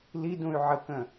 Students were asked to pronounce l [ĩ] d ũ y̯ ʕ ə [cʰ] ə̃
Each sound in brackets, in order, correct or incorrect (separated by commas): incorrect, incorrect